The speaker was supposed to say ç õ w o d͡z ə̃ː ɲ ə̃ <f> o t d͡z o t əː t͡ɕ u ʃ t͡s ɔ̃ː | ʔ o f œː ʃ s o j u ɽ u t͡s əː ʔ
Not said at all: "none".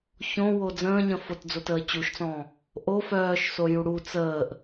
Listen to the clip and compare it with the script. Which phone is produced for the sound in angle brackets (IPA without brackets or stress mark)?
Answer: f